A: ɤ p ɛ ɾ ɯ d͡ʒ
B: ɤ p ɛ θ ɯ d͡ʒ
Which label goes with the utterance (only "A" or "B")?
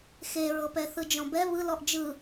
B